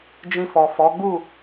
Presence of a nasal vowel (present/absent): present